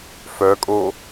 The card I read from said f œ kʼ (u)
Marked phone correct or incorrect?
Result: incorrect